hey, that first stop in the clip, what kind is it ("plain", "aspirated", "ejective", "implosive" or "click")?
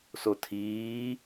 aspirated